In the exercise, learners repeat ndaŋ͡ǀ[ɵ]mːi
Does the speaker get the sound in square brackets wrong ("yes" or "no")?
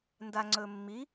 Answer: no